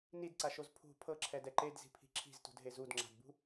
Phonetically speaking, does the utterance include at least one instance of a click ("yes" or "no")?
yes